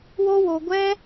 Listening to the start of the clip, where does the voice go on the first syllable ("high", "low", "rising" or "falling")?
high